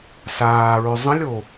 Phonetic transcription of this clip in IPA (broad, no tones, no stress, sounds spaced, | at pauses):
s aː ɹ ʏ zˤ ə̃ lʲ o